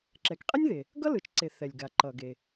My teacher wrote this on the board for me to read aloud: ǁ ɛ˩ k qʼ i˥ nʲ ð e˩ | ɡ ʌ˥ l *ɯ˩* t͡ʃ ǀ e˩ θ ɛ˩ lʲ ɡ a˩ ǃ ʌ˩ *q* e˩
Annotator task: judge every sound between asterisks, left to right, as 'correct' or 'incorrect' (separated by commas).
correct, incorrect